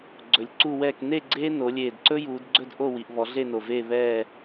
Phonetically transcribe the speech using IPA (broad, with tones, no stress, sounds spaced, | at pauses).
ɡ͡ǀ ɵ˨˩ lʲ ǀ u˥˧ w ɛː˥˧ k n e˥˧ ɡ͡ǀ eː˥ n o˩˧ lʲ eː˨˩ d ǀ ɵ˥ j uː˩˧ d ɡ͡ǀ ɵ˥˧ d ʔ o˥˧ w i˩˧ ʔ β ɔ˩˧ ɮ e˥˧ n o˨˩ v eː˥˧ β ɛː˥˧